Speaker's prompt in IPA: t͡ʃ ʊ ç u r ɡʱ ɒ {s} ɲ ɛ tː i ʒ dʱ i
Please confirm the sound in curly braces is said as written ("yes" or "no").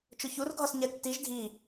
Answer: yes